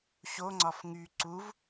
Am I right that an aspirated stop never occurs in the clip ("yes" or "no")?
yes